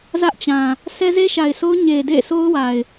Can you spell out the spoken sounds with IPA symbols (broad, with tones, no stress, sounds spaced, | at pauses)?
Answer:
z ä˦ ʔ t͡ɕ ã˨ | s ɛ˦ z e˦ ʃ a˨ ɪ̯ sʰ o˦ ʊ̯ ɲ e˨ d ḛ˦˨ sʰ o˦ ʊ̯ w a˨ ɪ̯